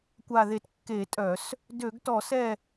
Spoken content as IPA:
kʷ a˦˨ ð e˦˨ t kː e˧˩˧ tʼ œ˧˩˧ s | d ø˧˩˧ ɡ t ɔ˧˩˧ s ɛ˦˨

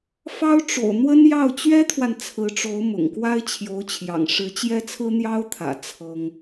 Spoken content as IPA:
f ɑ˥ ʊ̯ ʈ͡ʂ o̰˨˩ ʊ̯ n̪ w ə˥ n j ɑ˥˩ ʊ̯ t͡ɕ ɥ ɛ˥ t̪ʰ w a˨ n t͡sʰ ɹ̩˧˥ ʈ͡ʂ o˧˥ ʊ̯ m ʊ̰˨˩ ŋ k w a˥ ɪ̯ t͡ɕʰ j o˧˥ ʊ̯ t͡ɕʰ j ɑ̰˨˩ ŋ ʂ ɻ̩˧˥ t͡ɕ j ɛ˥ t͡sʰ ɹ̩˥ n̪ j ɑ˥ ʊ̯ t̪ʰ ä̰˨˩ t͡sʰ ɤ˥ ŋ

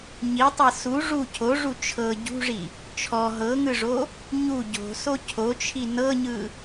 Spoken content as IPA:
ɲ i tˤ ɤ s u ʐ u cʰ o ʐ u t͡ʃʰ ɤ ɟ ṳ ʐ i | t͡ʃʰ ɔ ɦ ɤ ŋ ɯ ʐ o | ɲ u ɟ o̤ s o cʰ o t͡ʃʰ i n ɤ ɲ ɯ

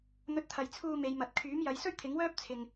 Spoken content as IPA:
n̪ ɵ˧ t̚ t̪ʰ ɐ˨ j t͡sʰ uː˧ m e˨˧ j m ɐ˨ t̚ kʰ yː˨˥ m j ɐ˨˧ j s ɵ˥ ɥ t̪ʰ ɪ˨˥ ŋ w œː˥ p̚ t͡sʰ ɪ˧ ŋ

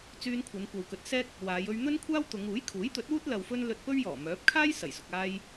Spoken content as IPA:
t͡s yː˧ n kʷʰ ɐ˨˧ n kʷ ɐ˨ w k ɵ˨˥ t̚ s ɛː˥ k̚ | w aː˨˧ j ɵ˧ ɥ n̪ ɵ˥ n kʷʰ aː˥ w t̪ ʊ˨˧ ŋ uː˨˥ j kʰ uː˨˥ j t̪ ɵ˨˥ t̚ w uː˥ t̚ l ɐ˨ w f ɵ˧ n l ɵ˧ t̚ p ɵ˥ ɥ j ɔː˨˩ m œː˨˥ p̚ kʰ aː˥ j s ɐ˨˩ j s ʊ˨ k̚ aː˧ j

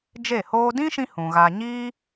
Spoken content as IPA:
d͡ʒ e˦˨ h oː˦ d ĩ˦ ʃ ĩ˧ h ũ˨ ɣ a˧ ɲ iː˦

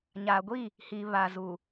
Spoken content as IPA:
ɲ a˨ ɡʷ i˦˨ | h i˨ β a˨ z u˨

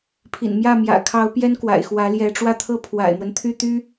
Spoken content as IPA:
pʰ ḭ˨˩ n m j ä˥˩ m j ä̰˨˩ kʰ ɑ˧˥ ʊ̯ p j ɛ˥ n k w a̰˨˩ ɪ̯ x w ä˧˥ l j ɛ˧˥ ʈ͡ʂ w ä˥ t̪ʰ ɤ˥ pʰ w a̰˨˩ ɪ̯ m w ə˦ n t̪ʰ y˥˩ t̪ y˥

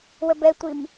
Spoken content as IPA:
w ə b ɛ tʷ i m

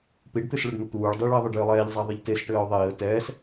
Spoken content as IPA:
p i ɖ t̪ ɨ s ɭ ə ɖ n̪ ə t̪ uː ɭ dˤ ɨ ɭ ɘ ðˤ ɘ ɖ j ɨ lˠ ɛː ʎ zˤ a ðˤ ɘ ʎ t e s ʈ ɘː ʊ̯ ðˤ iː ə̯ t ɛː s

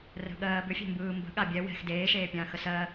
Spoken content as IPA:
r ə̤ ɠ ɜː b ʏ fʲ ɛ̤ m b ɯː m b ə̤ ɠ a bʲ ɛ w ɛ̤ x d eː ʃ eː pʲ ãː x ə s ɜ

